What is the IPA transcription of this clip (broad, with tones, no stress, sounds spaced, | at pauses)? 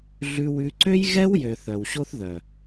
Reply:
ɮ ʉ˦ w ʉ˦ ǀ ø˦ j ɣ ɛ˦ w j ø˨ θ œ˨ w ɕ o˦ θ ð œ˨